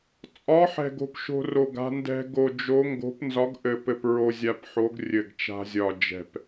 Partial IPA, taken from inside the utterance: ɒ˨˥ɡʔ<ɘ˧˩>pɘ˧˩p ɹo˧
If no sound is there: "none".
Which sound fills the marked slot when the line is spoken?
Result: ɘ˧˩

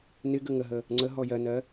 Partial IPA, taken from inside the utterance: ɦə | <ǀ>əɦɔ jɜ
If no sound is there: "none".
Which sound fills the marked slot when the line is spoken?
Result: ŋ͡ǀ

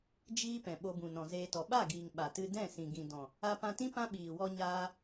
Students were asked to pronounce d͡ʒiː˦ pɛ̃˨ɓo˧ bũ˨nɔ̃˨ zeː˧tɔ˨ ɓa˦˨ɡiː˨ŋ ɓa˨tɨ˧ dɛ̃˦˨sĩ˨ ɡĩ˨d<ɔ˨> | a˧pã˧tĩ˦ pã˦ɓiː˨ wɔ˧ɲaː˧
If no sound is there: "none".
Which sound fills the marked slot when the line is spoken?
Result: ɔ̃˨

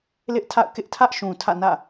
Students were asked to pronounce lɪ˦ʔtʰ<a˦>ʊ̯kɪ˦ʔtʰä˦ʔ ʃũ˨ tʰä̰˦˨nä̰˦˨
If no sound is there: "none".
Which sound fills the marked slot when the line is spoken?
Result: a̰˦˨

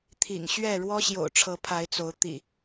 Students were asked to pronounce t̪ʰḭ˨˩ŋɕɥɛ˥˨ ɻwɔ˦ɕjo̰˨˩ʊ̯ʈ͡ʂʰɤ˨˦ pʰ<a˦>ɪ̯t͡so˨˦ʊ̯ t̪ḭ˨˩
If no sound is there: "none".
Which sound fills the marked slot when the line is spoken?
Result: a˨˦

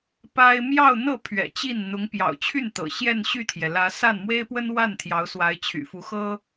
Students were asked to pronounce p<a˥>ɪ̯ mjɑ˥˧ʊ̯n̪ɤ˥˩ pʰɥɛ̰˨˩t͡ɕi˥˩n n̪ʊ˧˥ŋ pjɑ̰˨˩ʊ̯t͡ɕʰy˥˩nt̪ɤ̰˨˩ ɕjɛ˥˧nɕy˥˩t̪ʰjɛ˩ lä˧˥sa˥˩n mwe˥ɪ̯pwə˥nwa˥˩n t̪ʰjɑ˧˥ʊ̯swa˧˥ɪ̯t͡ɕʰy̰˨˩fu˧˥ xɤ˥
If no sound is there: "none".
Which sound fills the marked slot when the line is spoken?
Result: a˥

